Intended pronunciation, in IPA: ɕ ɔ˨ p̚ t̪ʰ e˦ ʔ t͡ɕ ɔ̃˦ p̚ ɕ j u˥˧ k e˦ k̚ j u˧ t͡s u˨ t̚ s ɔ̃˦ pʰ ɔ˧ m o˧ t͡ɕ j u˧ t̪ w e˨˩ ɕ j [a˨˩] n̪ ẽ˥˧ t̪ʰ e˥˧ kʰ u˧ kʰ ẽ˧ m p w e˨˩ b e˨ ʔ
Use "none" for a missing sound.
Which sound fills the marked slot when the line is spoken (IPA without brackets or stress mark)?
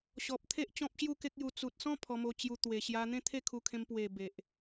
a˧